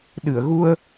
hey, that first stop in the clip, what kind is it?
implosive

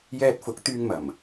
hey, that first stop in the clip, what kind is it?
plain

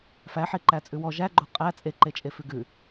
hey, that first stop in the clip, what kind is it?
click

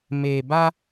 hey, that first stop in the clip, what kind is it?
plain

